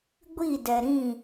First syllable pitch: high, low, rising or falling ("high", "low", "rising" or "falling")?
falling